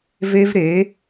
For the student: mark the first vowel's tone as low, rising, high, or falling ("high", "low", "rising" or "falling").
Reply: high